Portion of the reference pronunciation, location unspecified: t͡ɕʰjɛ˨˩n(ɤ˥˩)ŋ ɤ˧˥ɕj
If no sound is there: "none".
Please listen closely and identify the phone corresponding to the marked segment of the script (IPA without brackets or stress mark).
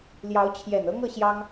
ɤ˥